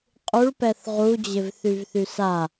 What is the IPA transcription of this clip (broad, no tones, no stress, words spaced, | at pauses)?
qʼuɭpɛθ ʁud͡ʑɪvθyvθy sa